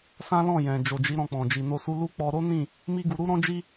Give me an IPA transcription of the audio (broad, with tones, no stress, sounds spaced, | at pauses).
s ã˦ l ɔ̃˦˨ j ɛ̃˨ d͡ʒ o˨ d͡ʒ i˨˦ ɾ ɔ̃˧ k͡p ɔ̃˨ d͡ʒ i˨ n o˧ s u˧ l u˦ k͡p ɔ˧ ɾ o˦ n ĩ˦˨ | m i˦ ɡ u˧ ɾ u˦ ɾ ɔ̃˦ d͡ʒ i˦